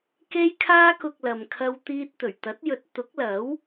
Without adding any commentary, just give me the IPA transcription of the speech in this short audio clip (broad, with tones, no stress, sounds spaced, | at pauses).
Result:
k e˥ j kʰ aː˥ k ʊ˧ k̚ l ɐ˧ m kʰ ɐ˥ w t̪ iː˥ t̚ t̪ ɵ˨˩ ɥ t̪ ɐ˨˥ t̚ j ɵ˨˥ t̚ t̪ ʊ˨˥ k̚ l ɐ˨˥ w